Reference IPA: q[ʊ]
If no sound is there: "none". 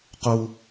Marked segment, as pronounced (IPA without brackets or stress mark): u